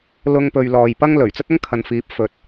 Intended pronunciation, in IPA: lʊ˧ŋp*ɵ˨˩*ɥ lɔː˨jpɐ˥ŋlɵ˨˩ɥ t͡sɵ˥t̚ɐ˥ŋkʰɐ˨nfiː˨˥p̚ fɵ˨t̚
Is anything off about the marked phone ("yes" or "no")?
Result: yes